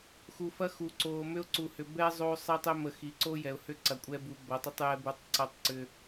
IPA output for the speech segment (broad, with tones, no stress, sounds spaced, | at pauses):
x u˨ f ɐ˦ x u˨ ǀ oː˨ m ʏ˦ ʊ̯ ǀ u˨ h ʏ˨ b ɛː˦ zˤ oː˦ sˤ ɛ˦ tˤ ʏ˦ m ə˨ x i˨ ǀ o˦ j ɛ˨ ʊ̯ h ʏ˦ ǀ ɐ˨ kʷʼ ɛ˦ b u˨˦ b ɐ˨˦ tˤ ʏ˦ tˤ j ɛ˦ b u˦ tˤ ǀ ɐ˦ tˤ ǀ ʏ˦